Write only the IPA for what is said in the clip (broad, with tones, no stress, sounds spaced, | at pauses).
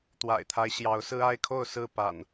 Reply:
t̪ w a̰˨˩ ɪ̯ t̪ʰ a˦ ɪ̯ ɕ j ɑ˨˦ ʊ̯ s ɹ̩˦ a˦ ɪ̯ kʰ o˥˨ ʊ̯ s ɹ̩˥˨ p a̰˨˩ n